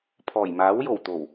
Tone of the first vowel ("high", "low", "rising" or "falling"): low